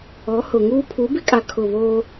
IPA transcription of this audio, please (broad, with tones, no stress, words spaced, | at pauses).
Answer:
ɔ˨˦ hʊ˨ ŋuː˦ pʰu˨˦bɪ˦kʼa˨ kʰʊ˦˨ βoː˦